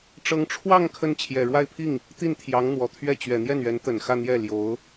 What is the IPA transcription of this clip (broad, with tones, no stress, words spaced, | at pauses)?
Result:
ʈ͡ʂɤ˧˥ŋʈ͡ʂʰwɑ˥˧ŋ kʰə˥˩n t͡ɕʰjɛ˨˩ɻwa˥˧ɪ̯pʰi˥˩ŋ | t̪i˥˩nt̪ʰjɑ˧˥ŋn̪wɔ˨˩t̪ʰɥɛ˥˩ t͡ɕɥɛ˨˩n̪jɛ˥˩nɥɛ˧˥n t̪ə˨˩n xä˥˧n̪jɛ˥˩ ljo˧˥ʊ̯